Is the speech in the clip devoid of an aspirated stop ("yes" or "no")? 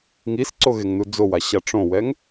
yes